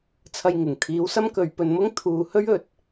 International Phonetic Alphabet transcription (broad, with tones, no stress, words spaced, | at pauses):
t͡sʰɐ˧jŋɪ˨˩ŋ t̪ʰiː˨˥wsɐ˥mkɵ˨ɥ pɵ˧nmʊ˥ŋt̪ʰuː˨hɵ˥ɥ ɵ˨t̚